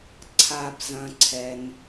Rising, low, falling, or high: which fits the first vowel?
low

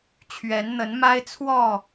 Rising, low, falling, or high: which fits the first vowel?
rising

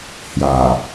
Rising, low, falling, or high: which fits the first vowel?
low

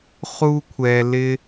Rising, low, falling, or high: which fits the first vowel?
high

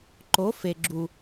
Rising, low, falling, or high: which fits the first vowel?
rising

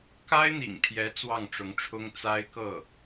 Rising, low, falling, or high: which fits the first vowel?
high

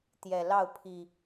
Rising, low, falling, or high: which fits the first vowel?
low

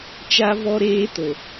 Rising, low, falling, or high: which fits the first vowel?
high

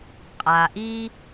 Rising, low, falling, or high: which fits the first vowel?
low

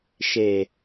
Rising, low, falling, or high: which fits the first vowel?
low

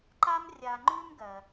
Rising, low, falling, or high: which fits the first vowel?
high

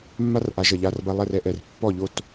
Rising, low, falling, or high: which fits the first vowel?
high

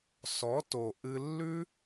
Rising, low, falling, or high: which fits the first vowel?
rising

